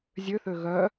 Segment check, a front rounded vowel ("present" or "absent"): present